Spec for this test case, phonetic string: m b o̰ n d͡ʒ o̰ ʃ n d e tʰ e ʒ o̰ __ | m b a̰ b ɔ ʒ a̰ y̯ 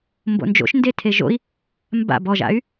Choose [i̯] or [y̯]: i̯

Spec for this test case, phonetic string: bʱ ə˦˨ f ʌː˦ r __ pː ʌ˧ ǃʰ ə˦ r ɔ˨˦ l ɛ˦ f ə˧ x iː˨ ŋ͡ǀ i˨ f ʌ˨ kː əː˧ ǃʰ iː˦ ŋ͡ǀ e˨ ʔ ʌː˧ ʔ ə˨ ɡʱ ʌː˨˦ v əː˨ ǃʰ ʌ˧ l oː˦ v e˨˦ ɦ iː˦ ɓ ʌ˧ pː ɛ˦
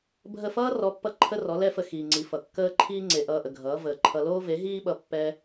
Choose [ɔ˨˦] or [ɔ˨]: ɔ˨˦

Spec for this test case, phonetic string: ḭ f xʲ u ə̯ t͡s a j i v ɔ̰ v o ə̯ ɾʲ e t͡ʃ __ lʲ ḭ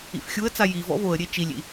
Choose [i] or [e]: i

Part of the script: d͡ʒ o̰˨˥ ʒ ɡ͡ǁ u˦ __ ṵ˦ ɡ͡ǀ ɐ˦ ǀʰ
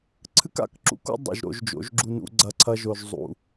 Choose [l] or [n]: n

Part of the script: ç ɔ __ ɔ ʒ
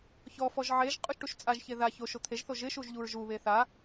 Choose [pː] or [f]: f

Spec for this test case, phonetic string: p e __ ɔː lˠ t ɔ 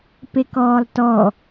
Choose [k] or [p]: k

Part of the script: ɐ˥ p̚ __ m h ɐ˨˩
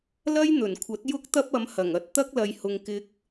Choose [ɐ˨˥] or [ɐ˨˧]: ɐ˨˧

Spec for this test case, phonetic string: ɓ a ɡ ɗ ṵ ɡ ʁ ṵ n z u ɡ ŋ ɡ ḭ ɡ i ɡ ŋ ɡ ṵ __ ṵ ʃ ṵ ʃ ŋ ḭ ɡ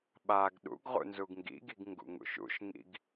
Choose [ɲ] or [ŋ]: ŋ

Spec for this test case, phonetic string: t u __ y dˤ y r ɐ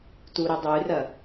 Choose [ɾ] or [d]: ɾ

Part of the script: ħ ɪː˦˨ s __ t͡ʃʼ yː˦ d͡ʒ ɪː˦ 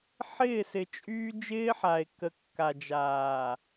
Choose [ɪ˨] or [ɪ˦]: ɪ˨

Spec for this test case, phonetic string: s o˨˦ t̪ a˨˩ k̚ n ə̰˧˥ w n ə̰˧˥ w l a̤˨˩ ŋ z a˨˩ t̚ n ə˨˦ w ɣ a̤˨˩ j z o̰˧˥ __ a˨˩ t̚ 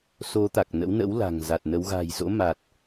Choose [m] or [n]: m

